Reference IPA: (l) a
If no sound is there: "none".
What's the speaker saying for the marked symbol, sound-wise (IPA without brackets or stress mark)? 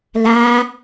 l